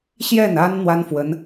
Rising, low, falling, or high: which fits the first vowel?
falling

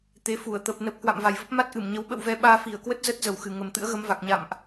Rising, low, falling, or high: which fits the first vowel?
rising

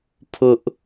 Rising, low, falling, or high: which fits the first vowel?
high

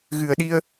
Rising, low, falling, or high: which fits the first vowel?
low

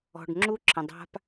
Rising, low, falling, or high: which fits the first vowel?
low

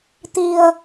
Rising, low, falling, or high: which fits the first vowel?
low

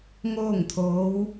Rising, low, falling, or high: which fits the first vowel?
falling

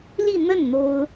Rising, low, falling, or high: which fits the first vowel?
falling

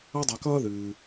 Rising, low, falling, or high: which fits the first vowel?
high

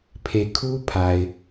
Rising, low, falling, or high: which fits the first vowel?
low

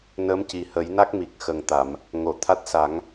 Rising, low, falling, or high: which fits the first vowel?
rising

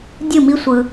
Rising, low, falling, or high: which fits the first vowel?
falling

